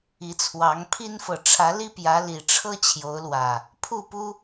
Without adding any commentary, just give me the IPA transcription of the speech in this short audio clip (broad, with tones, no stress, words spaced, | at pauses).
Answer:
i˨˦t͡sʰwɑ˨˦ŋpʰi˦nfɤ˨ ʈ͡ʂʰä˨˦li˦pjä˨˦ li˨˩ʈ͡ʂʰɤ˦ t͡ɕʰjo˨˦ʊ̯lwä˨˩ | pʰu˥˨pu˦